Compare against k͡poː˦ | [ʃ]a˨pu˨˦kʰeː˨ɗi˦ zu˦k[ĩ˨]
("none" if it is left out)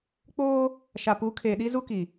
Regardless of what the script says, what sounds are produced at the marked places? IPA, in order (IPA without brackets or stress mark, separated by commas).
ʃ, i˨